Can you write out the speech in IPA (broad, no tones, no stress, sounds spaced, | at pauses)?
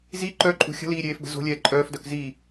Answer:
z i ǃ œ ǃʼ ṳ xʲ ə̤ l iː ɾʲ eː f b ə̤ z o̤ lʲ ɛː ǃʼ œː f d œ k z i